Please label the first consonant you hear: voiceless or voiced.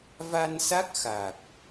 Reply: voiced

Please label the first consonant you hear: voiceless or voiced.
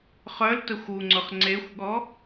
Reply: voiceless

